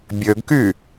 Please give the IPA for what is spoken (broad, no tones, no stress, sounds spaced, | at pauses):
bʲ ø ɡ k y